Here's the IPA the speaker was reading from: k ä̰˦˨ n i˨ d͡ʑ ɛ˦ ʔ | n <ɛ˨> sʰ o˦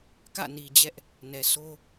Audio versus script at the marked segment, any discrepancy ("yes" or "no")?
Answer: no